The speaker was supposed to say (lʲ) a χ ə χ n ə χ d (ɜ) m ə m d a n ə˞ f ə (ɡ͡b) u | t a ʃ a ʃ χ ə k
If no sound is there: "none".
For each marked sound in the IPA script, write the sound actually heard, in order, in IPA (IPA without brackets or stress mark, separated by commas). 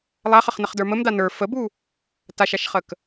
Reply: lˠ, ə˞, b